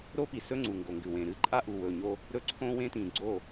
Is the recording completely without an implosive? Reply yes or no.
yes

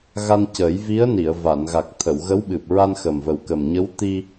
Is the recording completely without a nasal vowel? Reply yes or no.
yes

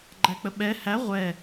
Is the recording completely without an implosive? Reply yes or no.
no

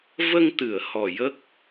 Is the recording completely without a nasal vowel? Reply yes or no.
yes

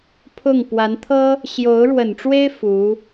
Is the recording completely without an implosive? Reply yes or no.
yes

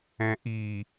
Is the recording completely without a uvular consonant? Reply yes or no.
yes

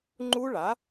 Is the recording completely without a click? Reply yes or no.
no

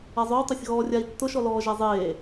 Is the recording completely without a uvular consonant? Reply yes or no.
yes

